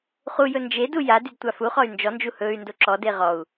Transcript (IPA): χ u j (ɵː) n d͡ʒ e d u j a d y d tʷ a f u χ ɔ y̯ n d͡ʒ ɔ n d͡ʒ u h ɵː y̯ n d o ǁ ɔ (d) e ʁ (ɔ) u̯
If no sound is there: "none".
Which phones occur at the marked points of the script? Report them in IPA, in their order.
ɵ, d, ɔ

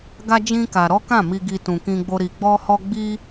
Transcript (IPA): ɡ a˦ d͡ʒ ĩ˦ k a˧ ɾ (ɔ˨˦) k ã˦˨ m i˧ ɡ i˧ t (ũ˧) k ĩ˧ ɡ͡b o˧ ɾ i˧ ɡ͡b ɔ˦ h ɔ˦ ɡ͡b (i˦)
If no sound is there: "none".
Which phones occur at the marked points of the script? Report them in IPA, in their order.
ɔ˦, ũ˨, i˦

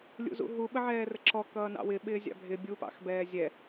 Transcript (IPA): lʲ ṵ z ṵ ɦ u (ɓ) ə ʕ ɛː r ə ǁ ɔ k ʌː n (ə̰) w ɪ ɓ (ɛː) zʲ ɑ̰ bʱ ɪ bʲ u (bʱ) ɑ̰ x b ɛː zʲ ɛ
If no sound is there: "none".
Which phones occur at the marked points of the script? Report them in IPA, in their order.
ɓ, ɑ̰, ɪː, p

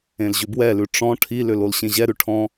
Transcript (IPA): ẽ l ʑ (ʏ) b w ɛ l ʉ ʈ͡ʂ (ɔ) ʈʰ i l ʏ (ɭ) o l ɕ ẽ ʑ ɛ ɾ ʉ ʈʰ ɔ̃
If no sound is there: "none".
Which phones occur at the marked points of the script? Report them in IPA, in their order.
ʏ, ɔ̃, l

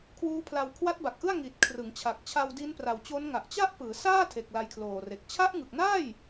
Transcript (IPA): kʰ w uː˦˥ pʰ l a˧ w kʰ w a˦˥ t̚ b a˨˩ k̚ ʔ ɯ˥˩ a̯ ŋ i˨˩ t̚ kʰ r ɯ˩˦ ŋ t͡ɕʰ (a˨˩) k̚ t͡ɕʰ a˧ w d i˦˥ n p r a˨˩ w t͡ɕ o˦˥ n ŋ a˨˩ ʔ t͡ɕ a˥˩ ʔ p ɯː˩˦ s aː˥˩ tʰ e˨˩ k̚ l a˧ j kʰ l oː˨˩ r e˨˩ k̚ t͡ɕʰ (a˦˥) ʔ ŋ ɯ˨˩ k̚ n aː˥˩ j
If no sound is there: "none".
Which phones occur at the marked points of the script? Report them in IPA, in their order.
a˨˩, a˦˥

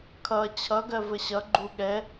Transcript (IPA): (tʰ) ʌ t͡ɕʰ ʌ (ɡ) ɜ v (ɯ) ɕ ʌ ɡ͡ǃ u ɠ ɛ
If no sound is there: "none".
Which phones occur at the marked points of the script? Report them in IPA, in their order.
kʰ, ɡ, ə

